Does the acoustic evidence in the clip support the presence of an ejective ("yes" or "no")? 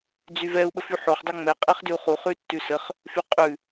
yes